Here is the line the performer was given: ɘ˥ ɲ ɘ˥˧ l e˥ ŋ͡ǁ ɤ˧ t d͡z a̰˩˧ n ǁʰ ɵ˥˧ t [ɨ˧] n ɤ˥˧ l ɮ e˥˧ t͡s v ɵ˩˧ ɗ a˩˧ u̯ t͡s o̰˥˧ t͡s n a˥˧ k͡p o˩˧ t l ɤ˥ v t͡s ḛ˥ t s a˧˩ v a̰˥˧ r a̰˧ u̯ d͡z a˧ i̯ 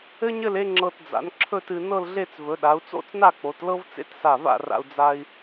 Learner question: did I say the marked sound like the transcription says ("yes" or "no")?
yes